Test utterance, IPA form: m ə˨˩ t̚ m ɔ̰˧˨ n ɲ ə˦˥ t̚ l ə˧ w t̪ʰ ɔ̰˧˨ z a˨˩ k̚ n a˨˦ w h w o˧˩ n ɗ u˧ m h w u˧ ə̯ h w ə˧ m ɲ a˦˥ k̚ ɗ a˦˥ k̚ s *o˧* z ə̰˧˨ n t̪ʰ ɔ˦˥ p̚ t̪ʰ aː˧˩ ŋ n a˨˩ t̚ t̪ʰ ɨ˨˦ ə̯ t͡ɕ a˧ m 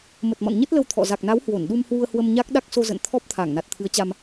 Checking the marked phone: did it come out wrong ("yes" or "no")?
no